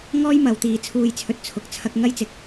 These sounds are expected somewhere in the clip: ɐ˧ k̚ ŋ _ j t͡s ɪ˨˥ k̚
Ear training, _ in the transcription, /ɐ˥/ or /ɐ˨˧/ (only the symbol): ɐ˥